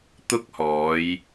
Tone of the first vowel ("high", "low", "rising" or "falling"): high